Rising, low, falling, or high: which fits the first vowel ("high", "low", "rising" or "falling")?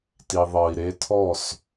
low